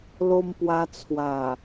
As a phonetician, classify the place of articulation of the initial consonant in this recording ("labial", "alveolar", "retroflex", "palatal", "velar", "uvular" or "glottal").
alveolar